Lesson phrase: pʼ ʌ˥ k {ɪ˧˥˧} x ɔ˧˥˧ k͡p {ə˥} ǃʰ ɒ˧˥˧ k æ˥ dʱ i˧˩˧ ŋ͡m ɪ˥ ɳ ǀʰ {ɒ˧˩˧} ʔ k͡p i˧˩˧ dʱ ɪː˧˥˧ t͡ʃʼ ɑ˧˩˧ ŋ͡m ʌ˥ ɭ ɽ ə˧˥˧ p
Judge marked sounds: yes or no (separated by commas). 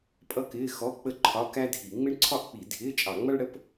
no, yes, no